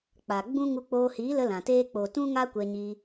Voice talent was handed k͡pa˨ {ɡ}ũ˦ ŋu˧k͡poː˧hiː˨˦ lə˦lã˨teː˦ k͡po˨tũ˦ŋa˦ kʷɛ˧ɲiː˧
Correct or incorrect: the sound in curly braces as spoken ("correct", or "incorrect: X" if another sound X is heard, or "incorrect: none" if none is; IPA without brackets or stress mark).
incorrect: ɡ͡b